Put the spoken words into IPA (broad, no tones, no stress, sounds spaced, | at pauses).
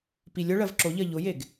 p i lʲ ʊ ɭ ɜ v ǁ o ʎ ɜ ʎ ʊ j e ɡ